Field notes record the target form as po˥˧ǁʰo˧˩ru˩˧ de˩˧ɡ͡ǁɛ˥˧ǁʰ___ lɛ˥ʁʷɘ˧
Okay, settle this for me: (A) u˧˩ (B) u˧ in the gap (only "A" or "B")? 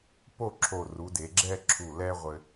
A